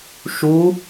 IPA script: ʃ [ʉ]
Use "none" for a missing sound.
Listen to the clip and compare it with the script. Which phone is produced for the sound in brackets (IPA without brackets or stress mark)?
u